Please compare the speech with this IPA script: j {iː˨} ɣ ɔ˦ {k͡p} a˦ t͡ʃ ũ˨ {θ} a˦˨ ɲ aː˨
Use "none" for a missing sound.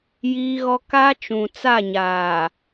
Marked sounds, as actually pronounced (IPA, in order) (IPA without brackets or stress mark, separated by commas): iː˦, k, t͡s